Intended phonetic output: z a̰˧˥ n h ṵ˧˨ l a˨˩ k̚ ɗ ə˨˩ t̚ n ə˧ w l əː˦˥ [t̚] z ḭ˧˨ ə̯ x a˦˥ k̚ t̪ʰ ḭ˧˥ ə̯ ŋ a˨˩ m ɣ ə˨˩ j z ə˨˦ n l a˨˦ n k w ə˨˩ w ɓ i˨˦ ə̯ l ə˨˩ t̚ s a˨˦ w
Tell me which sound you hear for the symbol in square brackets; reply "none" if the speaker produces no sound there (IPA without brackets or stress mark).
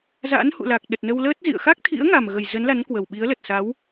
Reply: t̚